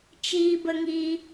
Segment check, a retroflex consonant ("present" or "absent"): absent